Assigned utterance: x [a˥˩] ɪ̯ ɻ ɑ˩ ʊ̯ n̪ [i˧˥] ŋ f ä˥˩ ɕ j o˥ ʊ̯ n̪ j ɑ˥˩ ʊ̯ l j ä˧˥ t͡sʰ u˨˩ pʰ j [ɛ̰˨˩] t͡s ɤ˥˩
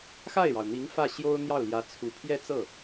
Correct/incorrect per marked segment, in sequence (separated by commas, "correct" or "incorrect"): correct, correct, incorrect